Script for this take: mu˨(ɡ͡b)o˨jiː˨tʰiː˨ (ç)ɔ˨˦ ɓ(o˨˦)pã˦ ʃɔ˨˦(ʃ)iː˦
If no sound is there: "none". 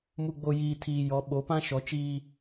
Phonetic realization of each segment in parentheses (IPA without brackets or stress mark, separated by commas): ɡ͡b, j, o˨˦, t͡ʃ